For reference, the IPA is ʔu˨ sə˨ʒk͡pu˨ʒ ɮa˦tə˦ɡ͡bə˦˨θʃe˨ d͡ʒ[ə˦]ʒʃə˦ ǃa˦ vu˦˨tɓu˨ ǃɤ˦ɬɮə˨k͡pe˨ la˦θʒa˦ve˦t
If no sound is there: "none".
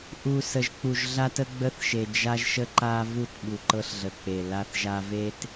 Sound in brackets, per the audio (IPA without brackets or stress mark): a˦